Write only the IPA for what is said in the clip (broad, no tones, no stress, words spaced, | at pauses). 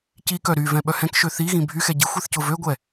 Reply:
cikœ ɾyvɛ̃ ɓœhɛ̃kʃø θiɣĩ bʱyxɛ ɟixʷ iθcʊvøɡʷɛ